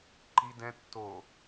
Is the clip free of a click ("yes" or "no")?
no